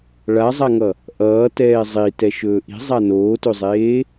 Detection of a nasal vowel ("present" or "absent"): absent